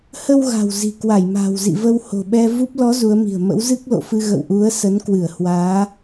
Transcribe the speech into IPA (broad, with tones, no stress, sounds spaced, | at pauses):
h ə˧ w ɣ a̤˨˩ w z i̤˨˩ k w a˧˩ j m a̤ː˨˩ w z ḭ˧˨ v ə˧ w h o̤˨˩ ɓ ɛ˧ v u˦˥ p̚ l ɔ˨˦ z u˨˦ ə̯ m i̤˨˩ ə̯ m ə̰˧˥ w z ɨ˦˥ k̚ l o̰˧˨ f ɨ˧ ɣ ə̰˧˨ w ʔ u˨˦ ə̯ s ə˨˦ n k w ɨ˧˩ ə̯ h w aː˨˦